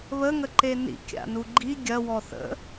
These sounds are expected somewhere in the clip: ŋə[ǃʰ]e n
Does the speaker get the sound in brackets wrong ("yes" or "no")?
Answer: yes